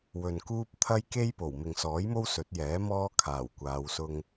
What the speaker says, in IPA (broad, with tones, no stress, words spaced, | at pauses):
wɵ˨nkuː˥p̚ t̪ʰɐ˥jke˥jpo˨˩w mɪ˨ŋsɔː˨˥jmo˥w sɵ˨˥t̚jɛː˨˥mɔː˥ kʰaː˨˩wkʷaː˨˧wsʊ˧ŋ